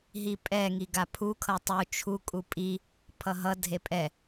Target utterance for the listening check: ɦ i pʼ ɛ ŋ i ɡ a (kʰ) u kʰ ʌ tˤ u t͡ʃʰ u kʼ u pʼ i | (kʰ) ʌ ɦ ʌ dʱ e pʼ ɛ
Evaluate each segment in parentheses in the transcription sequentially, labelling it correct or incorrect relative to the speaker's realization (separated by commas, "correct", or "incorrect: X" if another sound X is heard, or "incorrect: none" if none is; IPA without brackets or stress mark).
incorrect: pʰ, incorrect: pʰ